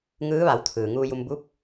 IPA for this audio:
ŋɯː˧˥ʋa˩˧w t̪ʰɯː˩ŋuː˧ju˧m bu˧˥p̚

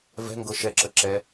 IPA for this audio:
vɛ̤ŋɡɤ ʃɛǁə ǁɛ

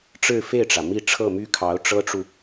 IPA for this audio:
ʈ͡ʂɻ̩˥˧fe˥˩ɪ̯ʈ͡ʂä˩ mi˥˧ ʈ͡ʂʰɤ˥˩my˥kʰɑ˧˥ʊ̯ ʈ͡ʂɤ˥ʈ͡ʂu˨

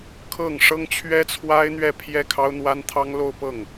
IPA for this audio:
kʰɤ˥˩ŋ ʂɤ˥ŋt͡ɕʰɥɛ˥t͡sʰwa˥ɪ̯n̪ɥɛ˥˧ pʰjɛ˥˩kʰɑ˥ʊ̯n̪wa˥nt̪ʰɑ˥ŋ lo˥˧ʊ̯pɤ˥˩ŋ

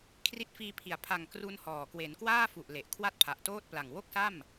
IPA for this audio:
kʰri˦˥t̚fiː˧pʰi˩˦a̯ pʰa˨˩ŋ kru˧nhɔː˨˩ kwe˩˦nkwaː˥˩fu˨˩ʔ le˨˩ʔ kʰwa˥˩t̚pʰa˨˩ʔtoː˥˩t̚pla˨˩ŋ wo˥˩k̚sa˥˩m

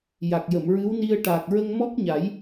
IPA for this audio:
ja˨˩k̚jə˨˩˨mɹɨ˧˥wni˧ə̯ ʈa˨˩k̚ ɹə˧ŋmɔ˦˥k̚ɲa˨˩˦j

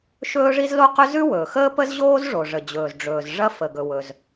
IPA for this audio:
ʃɵː˥ʐi˥z lo˥qɵ˥ zʉ˥wɵː˩xəː˥ pə˥zʑoː˥z ʐo˩ʐə˩d͡ʑɵː˩z ɖ͡ʐɵː˩zʐɐ˥ fə˩ɡɵ˩ wɵ˩z

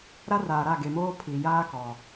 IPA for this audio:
ɾa˦raː˨ ɾa˦˨ɡe˨moː˦ pʰi˨jaː˦kɔ˨

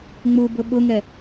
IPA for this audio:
ŋ͡mubʊ ɓʊŋɛ

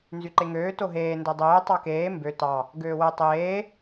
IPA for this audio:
nzyǃeŋøː toɦeː ndœdˤøː tˤɑkeː mbø tɑ | ɡøːwœ tˤeː

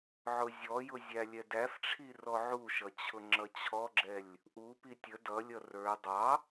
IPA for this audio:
ʕʊzʲɔjʊ zʲælʲɛdæfʈ͡ʂʰi rɔʕuʃʌ t͡ɕʰʊŋ͡ǁʌt͡ɕʰɔɡ͡ǁɛlʲ | ʔupi tʲə dʌlʲʌ rə˞ dˤɑ

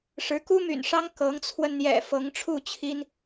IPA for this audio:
ʂɻ̩˧˥ku˥my̰˨˩nʂɑ˥ŋ kɤ˧˥ŋt͡sʰwə˧n n̪jɛ̰˨˩ fɤ˧˥ŋʈ͡ʂʰu˥˩ t͡ɕʰi˥n

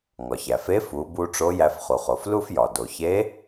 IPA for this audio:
ŋɒ˩çæ˩fe˧˥ fu˩˧bu˧ ʈ͡ʂo˧˥ jæ˧fχu˩χo˩f lu˥fjɒ˩ do˩çe˧˥

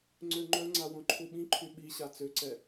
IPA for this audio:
ŋ͡ǀøŋ͡ǃœŋ͡ǀa wõǃʰuɓĩǃʰy ɓiɕa t͡søǀɛ

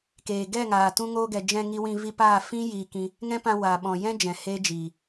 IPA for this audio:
keː˨ ɡɛ˦˨ŋaː˨ tũ˧ŋoː˧ɡɛ˨ d͡ʒɛ̃˧ŋi˧wĩ˧ vi˧paː˦˨ fĩ˦ jiː˧kĩ˧ | ŋɛ̃˦pã˧ waː˨ ɓɔ̃˨jɛ̃˦d͡ʒɛ̃˨ heː˦d͡ʒiː˨

